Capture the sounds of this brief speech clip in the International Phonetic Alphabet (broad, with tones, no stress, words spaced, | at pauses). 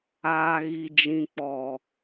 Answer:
aː˨ɣi˨d͡ʒĩ˨k͡pɔ˨